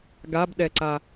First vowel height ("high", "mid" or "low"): low